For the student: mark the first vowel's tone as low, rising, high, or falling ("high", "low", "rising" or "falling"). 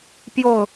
low